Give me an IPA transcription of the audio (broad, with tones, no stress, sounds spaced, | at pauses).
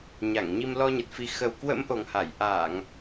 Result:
ɲ a˧˩ ŋ ɲ i˧ m l ɔ˧ ɲ ə˨˩ t̚ f i˨˩ x ə˨˩ w k w ə̰˧˥ m ʔ o˨˩ ŋ h a˧˩ j ʔ aː˧˩˨ ŋ